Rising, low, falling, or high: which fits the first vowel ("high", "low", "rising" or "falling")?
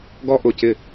high